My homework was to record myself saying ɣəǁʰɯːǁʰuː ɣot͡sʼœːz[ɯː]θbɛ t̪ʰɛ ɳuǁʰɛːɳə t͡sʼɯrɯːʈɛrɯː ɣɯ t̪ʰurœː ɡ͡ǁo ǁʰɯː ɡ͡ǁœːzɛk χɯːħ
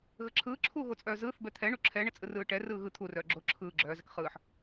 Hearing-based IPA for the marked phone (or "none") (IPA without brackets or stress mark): ɯː